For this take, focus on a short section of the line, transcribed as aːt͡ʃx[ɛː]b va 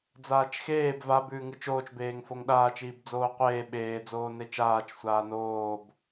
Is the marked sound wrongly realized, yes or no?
yes